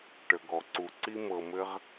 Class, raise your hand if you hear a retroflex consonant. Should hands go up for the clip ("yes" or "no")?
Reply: yes